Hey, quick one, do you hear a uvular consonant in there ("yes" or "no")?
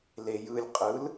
yes